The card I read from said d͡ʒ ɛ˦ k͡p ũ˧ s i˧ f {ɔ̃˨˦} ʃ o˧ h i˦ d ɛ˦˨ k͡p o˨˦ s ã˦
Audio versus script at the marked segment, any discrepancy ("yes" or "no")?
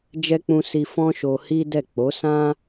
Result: yes